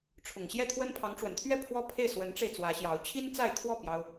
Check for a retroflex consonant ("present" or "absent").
present